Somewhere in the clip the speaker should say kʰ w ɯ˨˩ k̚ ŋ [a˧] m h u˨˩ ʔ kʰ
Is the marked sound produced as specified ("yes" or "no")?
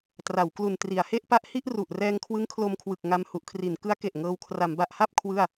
yes